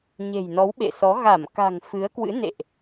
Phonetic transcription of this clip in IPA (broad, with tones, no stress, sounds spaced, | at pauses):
ɲ e̤˨˩ j n ɔ˨˦ w ɓ ḛ˧˨ s ɔ˨˦ ɣ a˧˩ m k a̤˨˩ ŋ f ɨ˨˦ ə̯ k w ɨ̰˧˥ n ḛ˧˨ ʔ